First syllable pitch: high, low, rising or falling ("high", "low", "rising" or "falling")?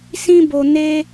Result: high